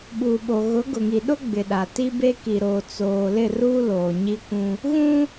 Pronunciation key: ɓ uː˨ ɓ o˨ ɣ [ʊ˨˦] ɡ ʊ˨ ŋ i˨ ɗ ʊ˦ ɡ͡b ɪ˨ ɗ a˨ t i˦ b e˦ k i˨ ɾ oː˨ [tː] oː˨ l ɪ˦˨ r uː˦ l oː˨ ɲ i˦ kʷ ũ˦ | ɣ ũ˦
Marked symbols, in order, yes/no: yes, no

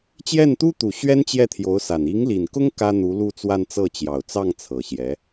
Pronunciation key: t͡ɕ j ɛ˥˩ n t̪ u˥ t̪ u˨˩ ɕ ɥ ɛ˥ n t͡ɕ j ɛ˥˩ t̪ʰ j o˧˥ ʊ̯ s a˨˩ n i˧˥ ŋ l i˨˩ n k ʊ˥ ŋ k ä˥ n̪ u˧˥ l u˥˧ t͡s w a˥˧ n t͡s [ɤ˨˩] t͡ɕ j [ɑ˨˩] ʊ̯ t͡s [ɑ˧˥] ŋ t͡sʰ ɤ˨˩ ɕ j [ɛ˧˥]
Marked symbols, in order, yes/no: no, yes, no, yes

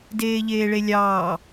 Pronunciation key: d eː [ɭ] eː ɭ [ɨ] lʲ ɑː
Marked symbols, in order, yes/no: no, no

